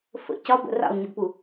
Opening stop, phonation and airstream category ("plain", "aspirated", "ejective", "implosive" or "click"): plain